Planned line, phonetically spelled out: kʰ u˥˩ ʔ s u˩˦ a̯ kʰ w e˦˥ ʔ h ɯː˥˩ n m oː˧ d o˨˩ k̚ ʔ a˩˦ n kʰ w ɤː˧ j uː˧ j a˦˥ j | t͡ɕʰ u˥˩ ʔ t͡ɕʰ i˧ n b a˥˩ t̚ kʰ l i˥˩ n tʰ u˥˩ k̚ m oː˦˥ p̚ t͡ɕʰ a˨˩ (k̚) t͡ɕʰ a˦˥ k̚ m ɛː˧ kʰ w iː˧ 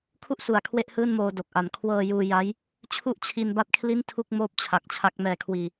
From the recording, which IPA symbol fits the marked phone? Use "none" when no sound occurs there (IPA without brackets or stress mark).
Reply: k̚